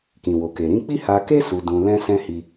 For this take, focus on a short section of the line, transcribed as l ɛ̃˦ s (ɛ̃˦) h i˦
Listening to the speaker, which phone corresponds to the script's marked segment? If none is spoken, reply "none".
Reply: ɛ̃˦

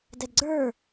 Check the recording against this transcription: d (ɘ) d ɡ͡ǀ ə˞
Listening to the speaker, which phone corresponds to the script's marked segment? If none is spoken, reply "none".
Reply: ɛ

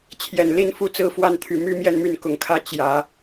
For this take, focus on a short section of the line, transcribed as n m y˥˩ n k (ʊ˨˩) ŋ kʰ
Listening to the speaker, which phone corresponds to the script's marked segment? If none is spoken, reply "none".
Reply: ʊ˨˩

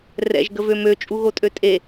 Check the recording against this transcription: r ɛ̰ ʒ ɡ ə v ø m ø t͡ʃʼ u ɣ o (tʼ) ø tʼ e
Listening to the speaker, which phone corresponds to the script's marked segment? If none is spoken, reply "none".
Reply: tʼ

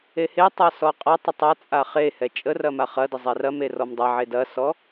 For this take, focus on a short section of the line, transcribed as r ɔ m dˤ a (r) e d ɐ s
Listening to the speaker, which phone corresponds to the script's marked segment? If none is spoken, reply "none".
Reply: ʕ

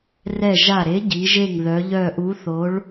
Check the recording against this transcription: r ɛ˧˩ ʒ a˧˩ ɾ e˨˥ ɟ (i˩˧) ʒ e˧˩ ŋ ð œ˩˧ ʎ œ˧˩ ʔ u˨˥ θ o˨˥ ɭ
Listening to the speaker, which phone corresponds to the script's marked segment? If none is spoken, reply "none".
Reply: i˩˧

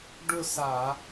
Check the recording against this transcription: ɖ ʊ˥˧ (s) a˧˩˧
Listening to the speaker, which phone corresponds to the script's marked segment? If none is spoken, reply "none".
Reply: s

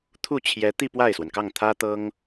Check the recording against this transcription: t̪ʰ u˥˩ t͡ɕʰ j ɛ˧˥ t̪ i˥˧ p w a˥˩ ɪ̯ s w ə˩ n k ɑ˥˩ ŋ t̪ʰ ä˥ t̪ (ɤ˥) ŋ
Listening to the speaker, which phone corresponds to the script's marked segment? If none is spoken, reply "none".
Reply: ɤ˥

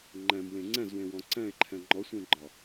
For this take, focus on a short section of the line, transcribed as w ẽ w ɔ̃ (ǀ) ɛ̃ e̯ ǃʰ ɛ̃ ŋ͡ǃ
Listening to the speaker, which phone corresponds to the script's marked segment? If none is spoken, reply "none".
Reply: ǀ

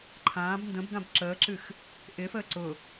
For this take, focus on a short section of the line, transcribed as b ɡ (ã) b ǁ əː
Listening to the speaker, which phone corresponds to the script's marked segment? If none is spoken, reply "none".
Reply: ã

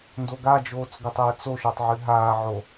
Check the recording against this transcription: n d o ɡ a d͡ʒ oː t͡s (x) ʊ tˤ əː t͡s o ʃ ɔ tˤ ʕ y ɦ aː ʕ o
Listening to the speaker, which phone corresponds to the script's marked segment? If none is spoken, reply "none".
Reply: ɡ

